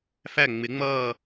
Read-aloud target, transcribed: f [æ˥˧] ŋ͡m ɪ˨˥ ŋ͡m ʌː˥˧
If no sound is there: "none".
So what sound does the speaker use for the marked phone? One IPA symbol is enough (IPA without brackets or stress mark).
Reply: æ˥˧